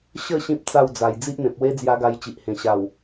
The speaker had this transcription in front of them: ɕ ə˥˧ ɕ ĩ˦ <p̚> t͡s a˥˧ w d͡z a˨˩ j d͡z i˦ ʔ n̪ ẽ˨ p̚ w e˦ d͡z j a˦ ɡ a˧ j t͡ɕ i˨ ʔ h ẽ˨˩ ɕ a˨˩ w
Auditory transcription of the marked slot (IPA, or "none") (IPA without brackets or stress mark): p̚